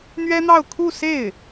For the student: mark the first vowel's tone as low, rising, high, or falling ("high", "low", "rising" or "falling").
high